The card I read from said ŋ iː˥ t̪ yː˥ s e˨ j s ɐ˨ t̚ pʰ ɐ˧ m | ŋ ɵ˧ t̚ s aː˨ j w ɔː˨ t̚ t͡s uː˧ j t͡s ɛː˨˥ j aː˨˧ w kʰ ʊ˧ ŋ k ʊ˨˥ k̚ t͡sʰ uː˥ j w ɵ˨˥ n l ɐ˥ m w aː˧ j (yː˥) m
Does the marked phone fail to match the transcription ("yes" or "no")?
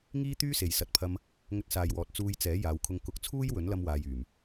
yes